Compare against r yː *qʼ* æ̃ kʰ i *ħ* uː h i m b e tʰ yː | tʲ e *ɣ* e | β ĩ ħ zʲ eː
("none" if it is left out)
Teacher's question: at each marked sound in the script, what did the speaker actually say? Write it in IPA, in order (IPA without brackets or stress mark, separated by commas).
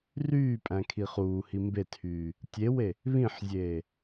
pʼ, χ, w